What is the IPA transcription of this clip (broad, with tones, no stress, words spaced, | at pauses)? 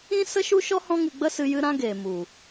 ĩ˦sə˦ ʃu˦ʃɔ˦ hɔ̃˦ŋɨ˧ ɡ͡bə˦sɨ˧ jɨ˧ɾã˧ ɡeː˨mu˨